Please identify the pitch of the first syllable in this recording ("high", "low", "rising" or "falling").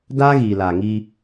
high